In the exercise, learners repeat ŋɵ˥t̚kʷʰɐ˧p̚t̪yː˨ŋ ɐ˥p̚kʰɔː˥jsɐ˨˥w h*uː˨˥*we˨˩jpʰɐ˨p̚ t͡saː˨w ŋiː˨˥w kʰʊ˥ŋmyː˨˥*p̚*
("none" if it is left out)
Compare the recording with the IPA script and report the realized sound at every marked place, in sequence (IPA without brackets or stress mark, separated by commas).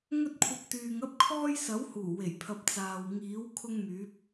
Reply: uː˨˩, p̚